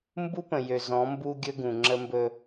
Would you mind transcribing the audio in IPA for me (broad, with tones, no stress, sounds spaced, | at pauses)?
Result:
m b u˦ p ə̃˨ j ø˨ z ɔ̃˨˦ m b u˦ ɡʲ ɵ˦ ɡ ũ˨ ŋ͡ǁ ə˦ m b ɵ˦